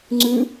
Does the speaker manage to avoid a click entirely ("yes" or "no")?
no